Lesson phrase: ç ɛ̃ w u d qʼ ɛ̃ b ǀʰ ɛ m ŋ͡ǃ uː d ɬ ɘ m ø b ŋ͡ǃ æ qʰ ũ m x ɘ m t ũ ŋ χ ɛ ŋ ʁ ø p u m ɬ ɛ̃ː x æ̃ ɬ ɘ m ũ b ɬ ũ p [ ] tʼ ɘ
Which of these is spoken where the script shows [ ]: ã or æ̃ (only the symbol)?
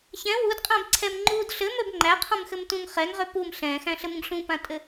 ã